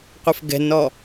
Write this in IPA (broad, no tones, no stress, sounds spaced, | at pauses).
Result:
qʷ ə f ɡ ɛ̤ n ɔ